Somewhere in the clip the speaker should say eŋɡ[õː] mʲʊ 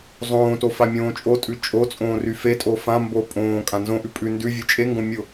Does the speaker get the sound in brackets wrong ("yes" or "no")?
yes